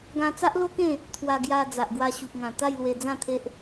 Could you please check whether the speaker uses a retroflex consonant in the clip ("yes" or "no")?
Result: no